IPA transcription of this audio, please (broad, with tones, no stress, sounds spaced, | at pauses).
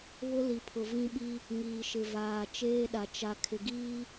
β ʊ˦ l i˨ pʰ ʊ˨ v ĩ˦ ɓ i˦ | ŋ iː˨ ʃ ɪ˨ v aː˨ t͡ʃ eː˦ ɗ a˨ t͡ʃ a˨ kʰ ɪ˨ ɡ iː˦